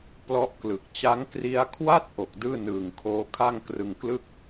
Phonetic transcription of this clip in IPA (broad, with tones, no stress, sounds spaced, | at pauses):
p l ɔ˦˥ ʔ k l ɯ˨˩ k̚ t͡ɕ a˦˥ ŋ k r i˦˥ a̯ kʰ w a˥˩ t̚ ʔ o˨˩ k̚ d ɯː˥˩ n ɯː˨˩ ŋ kʰ oː˦˥ kʰ a˥˩ ŋ k r ɯ˧ ŋ k l ɯ˥˩ k̚